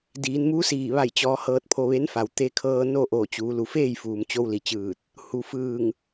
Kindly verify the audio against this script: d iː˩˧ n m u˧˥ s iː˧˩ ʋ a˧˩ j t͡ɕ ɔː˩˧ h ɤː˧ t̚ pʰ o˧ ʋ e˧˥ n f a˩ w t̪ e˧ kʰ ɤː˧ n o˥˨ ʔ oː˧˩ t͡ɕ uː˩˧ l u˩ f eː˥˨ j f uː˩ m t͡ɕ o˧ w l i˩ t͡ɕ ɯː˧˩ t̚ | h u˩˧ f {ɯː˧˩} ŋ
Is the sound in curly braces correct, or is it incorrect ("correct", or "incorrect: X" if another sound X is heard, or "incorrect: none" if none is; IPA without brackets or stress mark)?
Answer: correct